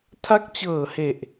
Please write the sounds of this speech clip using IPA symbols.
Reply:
tʰ a˦˥ k̚ t͡ɕ ɤː˨˩ h e˨˩ ʔ

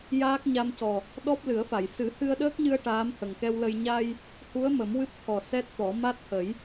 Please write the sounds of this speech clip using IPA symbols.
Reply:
j aː˦˥ k̚ ɲ a˧ m c ɔ˨˩ | ɗ ɔ˦˥ p̚ l ɨ˨˩˦ ə̯ f a˨˩˨ j s ɨ˨˩˦ h ɨ˧ ə̯ ɗ əː˦˥ k̚ ɲ ɨ˧ ə̯ ʈ aː˧˥ m h ə˨˩ ŋ k ɛ˧ w l ə˧ j ɲ a˧ j | h u˧˥ ə̯ m ə˨˩˦ m w ɨ˦˥ p̚ t̪ʰ ɔ˨˩ s ɛ˦˥ t̚ t̪ ɔ˨˩˦ m a˦˥ t̚ h ə˨˩˦ j

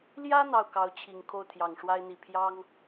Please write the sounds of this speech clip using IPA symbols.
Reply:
l j ä˥ n̪ ɑ˥˩ ʊ̯ k ɑ˧˥ ʊ̯ t͡ɕʰ i˨˩ ŋ kʰ o˥˩ ʊ̯ t̪ʰ j ɑ˨˩ ŋ ʂ w a˥ ɪ̯ n̪ i˨˩ pʰ j ɑ˥ ŋ

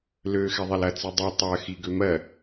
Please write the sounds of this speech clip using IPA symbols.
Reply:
l ø x ɛ ðˤ ɛ l ɐ t͡s i dˤ i tˤ ɜ x i ɡ ø m ɜ

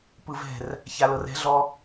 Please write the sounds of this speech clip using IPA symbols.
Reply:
p ɯ v ɛ̤ r | ç a l ɤ r ɛ̤ ɮ ɔ

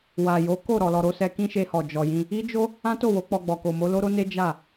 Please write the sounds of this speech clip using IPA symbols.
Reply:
w a˨ j o˨˦ k o˦˨ ɾ ɔ˨ l ɔ˨ ɾ o˧ s ɛ˧ k ĩ˦ ʃ e˧ h ɔ˨ d͡ʒ ɔ˨ j ĩ˧ | i˦ d͡ʒ o˦ | ã˦ t o˦˨ w o˨˦ k͡p ɔ˧ ɡ͡b ɔ˨ k o˨ m o˨˦ l o˦ ɾ o˦ n e˦ d͡ʒ a˦˨

